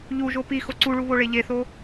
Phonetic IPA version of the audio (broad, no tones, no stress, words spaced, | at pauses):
ʎuʒo pi xoǀuɭu βoɭeʎeθo